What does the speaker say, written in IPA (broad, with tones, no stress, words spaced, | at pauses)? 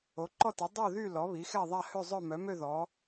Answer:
o˩˥ǃɔ˥˨ti˩˥ dˤo˥˨ðy˥˨ lɔ˩˥βi˩˥xɛ˥˨ðˤa˥˨ hø˥˨zˤœ˥˨ mœ˩˥mø˥˨ ðɔ˩˥